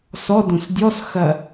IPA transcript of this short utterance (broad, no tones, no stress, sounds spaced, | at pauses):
s ɔ d õ s dʲ ɔ s x ɐ